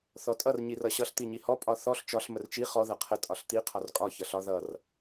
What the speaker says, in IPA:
θ ɔ tʼ ʌ r ɲ i r ʌ ɕ ʌ ɬ t̪ i ɲ i h ɔ pʼ ɒ θ ɔ ɬ t͡ʃ ɒ ɬ m ə r t͡ʃ i χ ɔ ð ʌ qʰ ə tʼ ɒ ɬ t̪ i qʰ ɒ r kʼ ɒ ç ʌ ɬ ɒ ð ʌ r

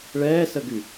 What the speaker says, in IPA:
ɭ ɛː s ə ɡ y

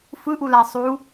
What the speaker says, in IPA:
f ɯ ʔ u l a sˤ u

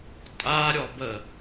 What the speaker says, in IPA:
tʼ a ɾʲ ɔ b ə

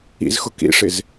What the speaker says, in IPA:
ḭ z x ʊ k ḭ ʂ ɪ z

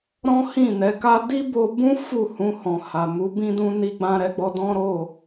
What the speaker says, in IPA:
ɾ ɔ̃˦ h ĩ˦˨ n ɛ˨˦ k a˦ d i˦ b o˧ b ũ˦ f u˦˨ h ũ˧ h ɔ̃˨ h a˨ m u˨˦ b ĩ˦ d ũ˦ n i˧ ɡ͡b ã˧ ɾ ɛ˧ ɡ͡b ɔ˧ d ɔ̃˦ ɾ o˦˨

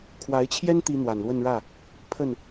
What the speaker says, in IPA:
kʰ w a˧˥ ɪ̯ t͡ɕʰ j ɛ˥ n t̪ i˥ n̪ w a˨˩ n l w ə˥˧ n ɻ ä˥˩ | pʰ ə˥˩ n

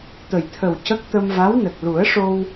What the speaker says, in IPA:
t̪ ə˨˩ j t̪ʰ ə˨˩ w c ə˦˥ k̚ t̪ ə˧ m v a˧˥ w n ə˨˩ k̚ l u˨˩˦ ə̯ ʂ o˧ w

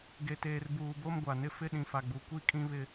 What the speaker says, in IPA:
ɡ e˨ t eː˨ r b uː˨ b o˦ m ɡʷ a˨ n ɪ˦ f ɪ˦ ɗ ĩ˨ f a˨ ɡ͡b u˨ kʷ i˦˨ kʼ ĩ˦ β ɪ˦

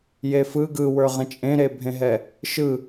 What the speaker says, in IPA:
j e f ɯ ɡ ɯ w ə˞ ʁ ɛ̃ t͡ʃʼ ẽ ɾ e bʱ ẽ ɦ ɛ | ʃ ɯ

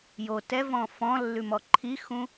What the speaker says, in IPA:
j o t ɛ v ɔ̃ f ɔ̃ lː ʉ m ɔ ǃʰ i x ũ

